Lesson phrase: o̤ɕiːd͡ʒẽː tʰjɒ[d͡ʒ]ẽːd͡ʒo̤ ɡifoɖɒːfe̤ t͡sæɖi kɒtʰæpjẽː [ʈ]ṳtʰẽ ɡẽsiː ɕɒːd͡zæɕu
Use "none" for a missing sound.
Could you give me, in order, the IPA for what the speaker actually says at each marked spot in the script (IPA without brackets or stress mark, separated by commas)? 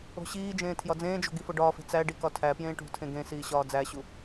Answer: d͡z, ʈ